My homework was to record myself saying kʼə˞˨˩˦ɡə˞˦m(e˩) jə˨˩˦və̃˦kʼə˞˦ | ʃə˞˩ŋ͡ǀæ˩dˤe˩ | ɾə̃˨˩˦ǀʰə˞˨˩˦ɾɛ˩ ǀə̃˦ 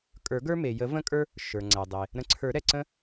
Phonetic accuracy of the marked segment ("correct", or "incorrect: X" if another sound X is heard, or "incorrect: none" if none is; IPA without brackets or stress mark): correct